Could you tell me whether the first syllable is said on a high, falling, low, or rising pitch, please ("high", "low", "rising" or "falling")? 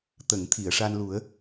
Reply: low